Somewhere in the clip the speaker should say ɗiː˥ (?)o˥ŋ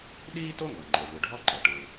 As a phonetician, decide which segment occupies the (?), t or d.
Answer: t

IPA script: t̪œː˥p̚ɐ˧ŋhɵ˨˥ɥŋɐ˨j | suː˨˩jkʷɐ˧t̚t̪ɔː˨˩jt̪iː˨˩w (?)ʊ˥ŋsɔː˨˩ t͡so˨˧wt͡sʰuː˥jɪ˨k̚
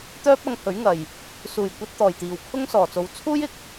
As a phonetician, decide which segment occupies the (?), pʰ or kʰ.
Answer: kʰ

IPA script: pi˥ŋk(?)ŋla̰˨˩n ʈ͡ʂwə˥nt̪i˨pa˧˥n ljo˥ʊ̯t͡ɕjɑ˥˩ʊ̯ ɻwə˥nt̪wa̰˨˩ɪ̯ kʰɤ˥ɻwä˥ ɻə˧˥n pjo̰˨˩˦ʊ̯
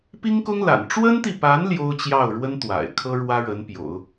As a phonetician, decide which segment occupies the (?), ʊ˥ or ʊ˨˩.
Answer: ʊ˥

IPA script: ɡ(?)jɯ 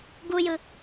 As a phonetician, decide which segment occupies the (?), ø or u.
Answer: u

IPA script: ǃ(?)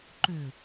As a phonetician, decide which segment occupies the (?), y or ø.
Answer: ø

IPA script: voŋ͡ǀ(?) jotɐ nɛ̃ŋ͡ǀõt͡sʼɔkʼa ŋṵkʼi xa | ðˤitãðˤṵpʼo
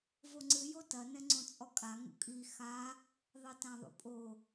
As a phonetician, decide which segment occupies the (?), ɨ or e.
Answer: ɨ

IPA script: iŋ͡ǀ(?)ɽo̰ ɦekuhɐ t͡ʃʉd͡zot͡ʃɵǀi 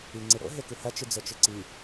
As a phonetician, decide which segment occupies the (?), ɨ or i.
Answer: ɨ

